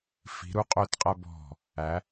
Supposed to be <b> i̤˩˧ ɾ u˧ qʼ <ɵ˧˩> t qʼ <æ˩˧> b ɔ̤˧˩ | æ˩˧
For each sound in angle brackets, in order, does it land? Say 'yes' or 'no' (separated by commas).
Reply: no, yes, no